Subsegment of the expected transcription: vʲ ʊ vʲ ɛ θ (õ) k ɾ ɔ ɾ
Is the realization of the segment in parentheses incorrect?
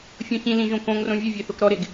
yes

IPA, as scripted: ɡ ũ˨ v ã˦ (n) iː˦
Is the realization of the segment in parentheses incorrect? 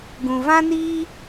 no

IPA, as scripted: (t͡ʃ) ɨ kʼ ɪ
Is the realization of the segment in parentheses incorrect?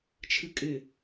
yes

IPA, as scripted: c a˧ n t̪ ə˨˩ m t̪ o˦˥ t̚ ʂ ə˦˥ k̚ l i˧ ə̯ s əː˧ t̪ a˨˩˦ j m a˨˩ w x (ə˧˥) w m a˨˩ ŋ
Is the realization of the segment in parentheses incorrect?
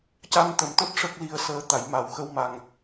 yes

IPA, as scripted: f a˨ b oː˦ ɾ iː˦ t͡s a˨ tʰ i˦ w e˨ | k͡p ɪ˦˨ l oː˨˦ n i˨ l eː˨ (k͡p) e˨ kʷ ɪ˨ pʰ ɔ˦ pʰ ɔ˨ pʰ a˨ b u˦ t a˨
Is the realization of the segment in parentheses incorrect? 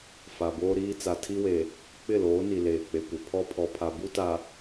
no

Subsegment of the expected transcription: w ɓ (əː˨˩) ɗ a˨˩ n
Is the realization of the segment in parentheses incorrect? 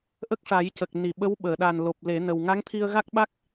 yes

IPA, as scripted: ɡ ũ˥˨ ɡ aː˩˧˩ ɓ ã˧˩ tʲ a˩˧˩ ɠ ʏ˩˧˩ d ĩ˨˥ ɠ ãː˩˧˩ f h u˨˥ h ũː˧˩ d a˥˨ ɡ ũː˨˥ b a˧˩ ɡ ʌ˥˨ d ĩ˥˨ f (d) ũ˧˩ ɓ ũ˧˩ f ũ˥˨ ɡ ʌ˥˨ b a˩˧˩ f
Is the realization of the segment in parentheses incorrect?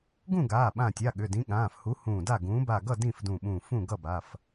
no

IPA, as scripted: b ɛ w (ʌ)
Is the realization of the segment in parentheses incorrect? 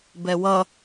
no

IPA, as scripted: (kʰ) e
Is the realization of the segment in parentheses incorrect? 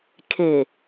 no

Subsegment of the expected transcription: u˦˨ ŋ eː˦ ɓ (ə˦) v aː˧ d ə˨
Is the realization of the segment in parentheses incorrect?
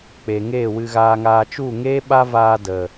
yes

